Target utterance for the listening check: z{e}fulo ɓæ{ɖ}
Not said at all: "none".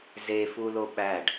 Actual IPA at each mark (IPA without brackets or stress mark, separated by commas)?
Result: e, ɖ